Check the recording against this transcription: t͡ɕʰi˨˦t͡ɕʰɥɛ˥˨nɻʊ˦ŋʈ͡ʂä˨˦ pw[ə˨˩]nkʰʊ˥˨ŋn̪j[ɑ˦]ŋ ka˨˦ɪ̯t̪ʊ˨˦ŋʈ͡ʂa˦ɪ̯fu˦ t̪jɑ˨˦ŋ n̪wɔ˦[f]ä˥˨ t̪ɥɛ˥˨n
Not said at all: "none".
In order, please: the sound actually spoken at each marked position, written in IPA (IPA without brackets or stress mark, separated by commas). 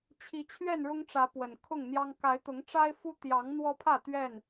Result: ə˨˩, ɑ˦, pʰ